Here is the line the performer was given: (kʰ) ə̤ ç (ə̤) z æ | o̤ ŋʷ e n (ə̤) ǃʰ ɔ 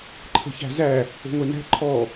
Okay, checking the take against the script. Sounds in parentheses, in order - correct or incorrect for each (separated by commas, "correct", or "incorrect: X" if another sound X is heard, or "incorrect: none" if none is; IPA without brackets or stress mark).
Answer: incorrect: ǃʰ, incorrect: æ̤, incorrect: æ̤